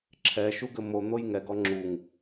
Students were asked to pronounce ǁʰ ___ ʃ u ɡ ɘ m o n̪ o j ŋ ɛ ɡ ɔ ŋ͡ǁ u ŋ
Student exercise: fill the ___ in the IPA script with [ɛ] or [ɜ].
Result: ɛ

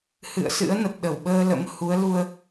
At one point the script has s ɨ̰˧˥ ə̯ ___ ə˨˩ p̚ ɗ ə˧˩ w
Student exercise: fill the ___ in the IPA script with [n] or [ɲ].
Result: n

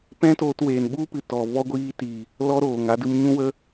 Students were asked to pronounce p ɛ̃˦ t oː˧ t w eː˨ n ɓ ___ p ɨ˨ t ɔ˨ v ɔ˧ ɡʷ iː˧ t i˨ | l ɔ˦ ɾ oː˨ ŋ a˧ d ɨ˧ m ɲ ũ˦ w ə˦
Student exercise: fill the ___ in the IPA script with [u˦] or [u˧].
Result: u˦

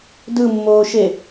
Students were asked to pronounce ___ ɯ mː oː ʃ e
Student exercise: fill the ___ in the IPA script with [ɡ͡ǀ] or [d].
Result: d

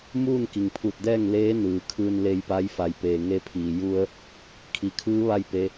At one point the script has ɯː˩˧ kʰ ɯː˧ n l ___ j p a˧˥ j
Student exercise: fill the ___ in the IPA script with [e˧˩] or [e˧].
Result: e˧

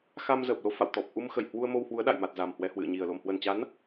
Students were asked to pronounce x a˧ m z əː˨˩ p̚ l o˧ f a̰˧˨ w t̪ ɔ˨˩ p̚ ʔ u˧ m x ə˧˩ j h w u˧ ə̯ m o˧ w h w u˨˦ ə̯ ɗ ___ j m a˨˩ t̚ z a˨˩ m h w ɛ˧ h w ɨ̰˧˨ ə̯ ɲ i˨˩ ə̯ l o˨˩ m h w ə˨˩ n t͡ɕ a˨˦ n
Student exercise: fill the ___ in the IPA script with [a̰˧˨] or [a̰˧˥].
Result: a̰˧˨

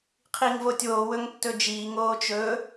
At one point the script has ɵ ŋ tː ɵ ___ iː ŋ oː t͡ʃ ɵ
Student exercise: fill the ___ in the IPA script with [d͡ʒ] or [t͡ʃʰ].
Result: d͡ʒ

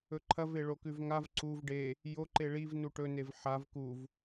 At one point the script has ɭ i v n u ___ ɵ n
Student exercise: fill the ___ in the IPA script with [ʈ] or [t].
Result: ʈ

